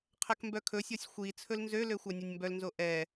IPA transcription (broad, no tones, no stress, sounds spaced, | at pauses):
qʰ ɛ k m b œ kʰ ɵ sʲ ɔ sʲ xʷ i t͡sʰ ɵ l n z ø l ø xʷ ɑ nʲ ɵ nʲ m b œ l n z o ʔ ɛ